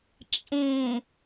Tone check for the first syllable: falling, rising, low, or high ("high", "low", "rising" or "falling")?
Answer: low